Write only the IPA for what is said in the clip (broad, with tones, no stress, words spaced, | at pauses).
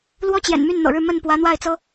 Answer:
lwɔ˥t͡ɕjɛ̰˨˩n my˥˩nn̪ɤ̰˨˩ɻɻ̩˥˧ mə˥˩n pwä˧˥n̪wa˥˩ɪ̯t͡sɤ˥